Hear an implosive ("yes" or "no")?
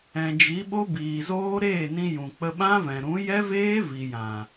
yes